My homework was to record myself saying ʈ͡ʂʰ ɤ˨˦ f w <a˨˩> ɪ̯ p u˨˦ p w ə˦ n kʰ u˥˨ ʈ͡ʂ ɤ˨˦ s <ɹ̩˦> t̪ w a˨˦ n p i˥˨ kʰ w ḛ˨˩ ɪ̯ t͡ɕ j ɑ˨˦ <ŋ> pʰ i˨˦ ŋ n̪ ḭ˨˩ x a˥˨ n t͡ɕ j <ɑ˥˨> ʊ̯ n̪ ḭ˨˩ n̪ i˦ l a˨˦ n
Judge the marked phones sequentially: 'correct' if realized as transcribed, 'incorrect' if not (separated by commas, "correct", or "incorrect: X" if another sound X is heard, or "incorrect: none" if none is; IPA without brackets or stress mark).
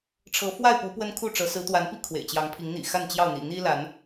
incorrect: a˥˨, incorrect: ɹ̩˨˦, correct, correct